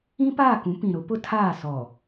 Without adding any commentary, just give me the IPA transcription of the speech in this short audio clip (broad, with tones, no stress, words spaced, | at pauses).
ĩ˦paː˦˨kũ˨˦ pĩ˨ɾʊ˨˦ pʊ˦tʰaː˦˨sɔ˨